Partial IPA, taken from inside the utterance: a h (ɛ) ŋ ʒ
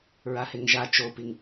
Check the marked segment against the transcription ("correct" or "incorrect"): incorrect